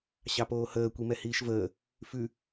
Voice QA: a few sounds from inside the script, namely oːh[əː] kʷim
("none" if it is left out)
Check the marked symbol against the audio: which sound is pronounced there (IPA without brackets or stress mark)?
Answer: əː